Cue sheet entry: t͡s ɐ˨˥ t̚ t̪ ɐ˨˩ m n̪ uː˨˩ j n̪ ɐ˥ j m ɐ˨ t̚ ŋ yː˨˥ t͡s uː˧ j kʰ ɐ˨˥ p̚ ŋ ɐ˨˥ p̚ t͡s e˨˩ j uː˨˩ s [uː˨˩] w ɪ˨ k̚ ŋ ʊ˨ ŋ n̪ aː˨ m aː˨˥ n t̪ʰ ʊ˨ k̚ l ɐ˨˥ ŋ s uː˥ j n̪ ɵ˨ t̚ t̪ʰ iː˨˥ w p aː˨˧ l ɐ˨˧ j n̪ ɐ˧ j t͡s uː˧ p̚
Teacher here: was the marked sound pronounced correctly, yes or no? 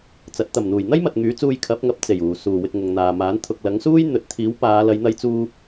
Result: yes